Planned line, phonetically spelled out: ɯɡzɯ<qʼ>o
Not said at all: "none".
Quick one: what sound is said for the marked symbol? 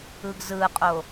qʼ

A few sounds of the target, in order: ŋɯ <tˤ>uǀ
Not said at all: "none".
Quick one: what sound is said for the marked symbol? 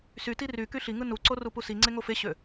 n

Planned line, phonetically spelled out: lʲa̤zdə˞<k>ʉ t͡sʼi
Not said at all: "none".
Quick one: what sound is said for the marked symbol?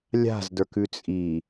k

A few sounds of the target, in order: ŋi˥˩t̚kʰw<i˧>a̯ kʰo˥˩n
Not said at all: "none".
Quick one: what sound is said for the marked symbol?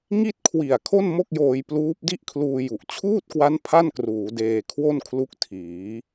i˨˩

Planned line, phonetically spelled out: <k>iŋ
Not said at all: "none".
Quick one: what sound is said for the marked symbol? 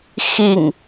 x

